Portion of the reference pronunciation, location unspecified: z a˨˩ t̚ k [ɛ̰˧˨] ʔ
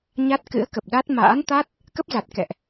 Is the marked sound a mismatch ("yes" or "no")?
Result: no